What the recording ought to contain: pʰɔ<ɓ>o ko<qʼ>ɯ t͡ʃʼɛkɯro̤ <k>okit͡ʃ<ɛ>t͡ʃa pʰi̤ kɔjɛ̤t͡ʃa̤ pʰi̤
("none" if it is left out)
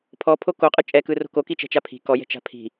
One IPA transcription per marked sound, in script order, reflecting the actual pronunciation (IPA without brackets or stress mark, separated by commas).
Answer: pʰ, qʼ, k, ɛ̤